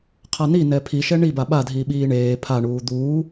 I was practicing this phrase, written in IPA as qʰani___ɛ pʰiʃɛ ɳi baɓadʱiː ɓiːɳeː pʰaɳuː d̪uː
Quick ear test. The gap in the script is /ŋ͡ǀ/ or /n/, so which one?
n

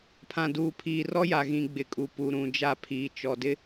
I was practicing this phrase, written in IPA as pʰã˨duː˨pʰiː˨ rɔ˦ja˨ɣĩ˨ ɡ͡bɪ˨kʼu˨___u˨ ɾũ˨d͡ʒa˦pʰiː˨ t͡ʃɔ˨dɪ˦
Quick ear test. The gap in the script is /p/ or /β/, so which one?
p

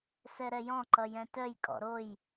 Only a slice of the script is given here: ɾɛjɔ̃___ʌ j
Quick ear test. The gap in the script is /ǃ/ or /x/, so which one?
ǃ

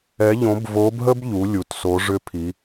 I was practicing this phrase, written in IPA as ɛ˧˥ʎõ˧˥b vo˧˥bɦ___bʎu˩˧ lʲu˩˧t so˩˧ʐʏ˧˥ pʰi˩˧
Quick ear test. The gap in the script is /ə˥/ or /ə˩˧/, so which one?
ə˥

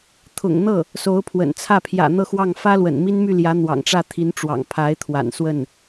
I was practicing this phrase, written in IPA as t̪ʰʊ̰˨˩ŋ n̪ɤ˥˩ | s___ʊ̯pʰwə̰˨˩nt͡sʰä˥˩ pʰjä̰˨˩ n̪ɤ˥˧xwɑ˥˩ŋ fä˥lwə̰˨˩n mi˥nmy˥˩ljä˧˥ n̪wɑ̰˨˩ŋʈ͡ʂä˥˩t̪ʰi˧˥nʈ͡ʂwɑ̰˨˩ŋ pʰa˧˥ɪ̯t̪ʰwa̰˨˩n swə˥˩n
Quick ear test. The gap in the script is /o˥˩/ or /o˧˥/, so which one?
o˧˥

